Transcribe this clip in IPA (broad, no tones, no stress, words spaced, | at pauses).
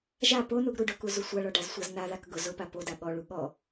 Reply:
ʒa ponuɡ ɾuɖʊku zusʷaɭɔ ɖazsʷaznaðak ɡʊ zʊpa poda ɠɔɭu ɠɔ